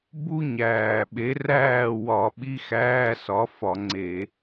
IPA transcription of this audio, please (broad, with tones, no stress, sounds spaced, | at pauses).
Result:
b u˥ ɲ æː˨˩ ɓ e˨˥ r æː˥˨ w ɒ˧˩˧ ɓ i˧˥˧ x æː˧˥˧ s ɒ˨˥ f ɒ˧˩˧ ŋ͡ǀ e˧˩˧